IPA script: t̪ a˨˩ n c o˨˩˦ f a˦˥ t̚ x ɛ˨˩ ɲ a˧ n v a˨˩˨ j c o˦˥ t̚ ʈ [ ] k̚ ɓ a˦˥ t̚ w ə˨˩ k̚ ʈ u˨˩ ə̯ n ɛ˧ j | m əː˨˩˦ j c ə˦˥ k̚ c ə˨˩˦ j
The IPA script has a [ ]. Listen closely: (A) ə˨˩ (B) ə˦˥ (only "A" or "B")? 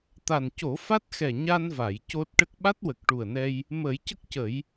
B